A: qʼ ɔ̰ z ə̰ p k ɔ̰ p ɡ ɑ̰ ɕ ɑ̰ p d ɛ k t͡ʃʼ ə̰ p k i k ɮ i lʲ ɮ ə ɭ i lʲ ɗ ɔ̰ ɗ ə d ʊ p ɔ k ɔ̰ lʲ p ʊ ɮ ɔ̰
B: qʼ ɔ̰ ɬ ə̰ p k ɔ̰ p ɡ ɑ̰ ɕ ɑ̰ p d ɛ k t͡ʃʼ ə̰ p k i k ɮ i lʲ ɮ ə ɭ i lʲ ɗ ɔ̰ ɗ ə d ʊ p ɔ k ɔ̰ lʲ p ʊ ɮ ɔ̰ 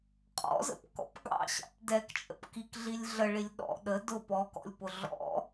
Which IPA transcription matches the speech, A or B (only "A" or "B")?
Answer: A